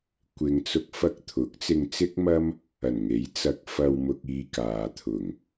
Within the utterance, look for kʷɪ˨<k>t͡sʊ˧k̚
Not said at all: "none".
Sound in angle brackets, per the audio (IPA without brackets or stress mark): ŋ